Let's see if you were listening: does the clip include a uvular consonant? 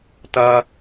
no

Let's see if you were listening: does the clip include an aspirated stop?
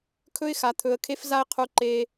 yes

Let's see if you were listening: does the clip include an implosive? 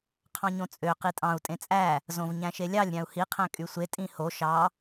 no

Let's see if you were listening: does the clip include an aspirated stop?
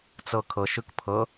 yes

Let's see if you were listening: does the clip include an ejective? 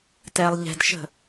no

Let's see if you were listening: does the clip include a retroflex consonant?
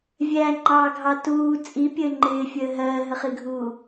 no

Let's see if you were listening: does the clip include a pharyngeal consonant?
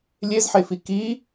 yes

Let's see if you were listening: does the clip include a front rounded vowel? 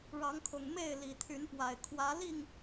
yes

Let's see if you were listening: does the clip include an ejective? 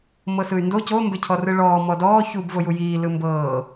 no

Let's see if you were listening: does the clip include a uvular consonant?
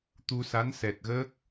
no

